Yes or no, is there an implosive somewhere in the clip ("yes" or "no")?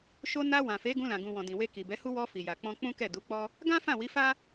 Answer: no